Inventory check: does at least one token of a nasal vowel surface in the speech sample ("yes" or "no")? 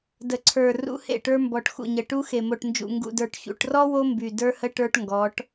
no